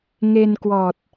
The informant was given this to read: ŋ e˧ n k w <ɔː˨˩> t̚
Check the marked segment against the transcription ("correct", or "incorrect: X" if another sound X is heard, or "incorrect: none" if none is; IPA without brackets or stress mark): correct